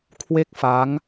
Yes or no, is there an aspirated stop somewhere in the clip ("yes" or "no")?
yes